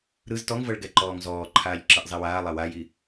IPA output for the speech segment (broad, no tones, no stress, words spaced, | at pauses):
ɾɯz tɔŋvɤɭ ɡɛǃɔːŋzɔːǃʰaːʎ ǁɯʔzˤewaːlˠa waji